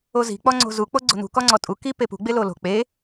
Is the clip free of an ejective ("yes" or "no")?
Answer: no